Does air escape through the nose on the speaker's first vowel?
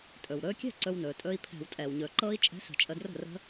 no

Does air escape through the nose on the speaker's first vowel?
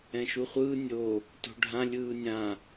yes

